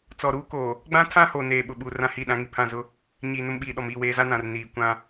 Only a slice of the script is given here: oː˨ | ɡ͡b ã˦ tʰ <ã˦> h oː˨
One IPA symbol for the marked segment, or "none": ã˦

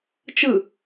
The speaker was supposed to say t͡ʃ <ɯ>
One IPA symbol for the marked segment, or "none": ɯ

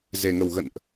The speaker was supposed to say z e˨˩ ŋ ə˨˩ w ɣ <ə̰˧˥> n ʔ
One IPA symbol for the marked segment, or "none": ə̰˧˨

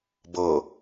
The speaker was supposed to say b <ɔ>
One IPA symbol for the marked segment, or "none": ɤ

